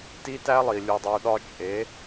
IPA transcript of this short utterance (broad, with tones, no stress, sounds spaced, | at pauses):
t i˦ t æ˦ lˠ i˨ lʲ u˨ dˤ u˨ ɗ ɒ˦ t͡ʃʼ e˨˦